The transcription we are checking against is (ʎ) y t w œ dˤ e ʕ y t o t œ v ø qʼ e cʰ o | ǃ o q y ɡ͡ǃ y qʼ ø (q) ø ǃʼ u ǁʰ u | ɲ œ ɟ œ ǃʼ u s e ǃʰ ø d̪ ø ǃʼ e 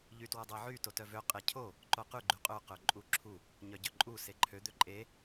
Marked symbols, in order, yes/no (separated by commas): yes, yes